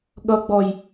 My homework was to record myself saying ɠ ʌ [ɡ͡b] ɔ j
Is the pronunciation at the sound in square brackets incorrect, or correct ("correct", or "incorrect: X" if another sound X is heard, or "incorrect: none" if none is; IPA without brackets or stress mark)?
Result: correct